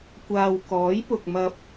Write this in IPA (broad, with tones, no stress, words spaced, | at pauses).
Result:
kʷaː˨wkɔː˨˥jpʊ˨k̚mɐ˧p̚